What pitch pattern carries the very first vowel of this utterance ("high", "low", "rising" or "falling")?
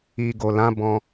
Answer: low